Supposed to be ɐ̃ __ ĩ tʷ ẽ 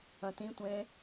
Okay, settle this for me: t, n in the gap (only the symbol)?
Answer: t